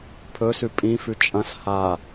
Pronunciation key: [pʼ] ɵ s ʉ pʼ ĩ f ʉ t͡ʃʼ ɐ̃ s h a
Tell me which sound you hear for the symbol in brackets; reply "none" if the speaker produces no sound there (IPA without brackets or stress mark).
pʰ